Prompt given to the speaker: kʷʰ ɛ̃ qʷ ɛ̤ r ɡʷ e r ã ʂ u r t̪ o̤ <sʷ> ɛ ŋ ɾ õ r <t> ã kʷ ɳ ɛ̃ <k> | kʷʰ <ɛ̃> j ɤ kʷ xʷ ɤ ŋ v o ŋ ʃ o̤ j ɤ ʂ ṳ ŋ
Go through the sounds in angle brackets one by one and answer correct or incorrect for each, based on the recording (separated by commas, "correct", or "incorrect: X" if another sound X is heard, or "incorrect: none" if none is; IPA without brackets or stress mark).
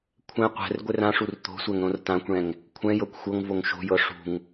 correct, correct, incorrect: ŋ, correct